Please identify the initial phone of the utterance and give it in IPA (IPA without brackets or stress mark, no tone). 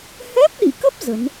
h